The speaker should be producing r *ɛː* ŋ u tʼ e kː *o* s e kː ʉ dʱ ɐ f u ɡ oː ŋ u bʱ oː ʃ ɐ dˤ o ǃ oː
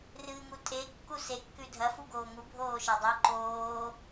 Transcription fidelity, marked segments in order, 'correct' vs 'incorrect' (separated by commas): incorrect, incorrect